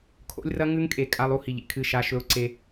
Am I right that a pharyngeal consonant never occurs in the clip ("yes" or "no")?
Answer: yes